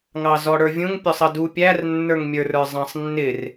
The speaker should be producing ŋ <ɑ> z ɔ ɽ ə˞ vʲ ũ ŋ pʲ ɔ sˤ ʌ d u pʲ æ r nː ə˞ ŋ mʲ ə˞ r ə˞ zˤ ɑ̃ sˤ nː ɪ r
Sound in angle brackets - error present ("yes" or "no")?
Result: no